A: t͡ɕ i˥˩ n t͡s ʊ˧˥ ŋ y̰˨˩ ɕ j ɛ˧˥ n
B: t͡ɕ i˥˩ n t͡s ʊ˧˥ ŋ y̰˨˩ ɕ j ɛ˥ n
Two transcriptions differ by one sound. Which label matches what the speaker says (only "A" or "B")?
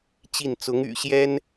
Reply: B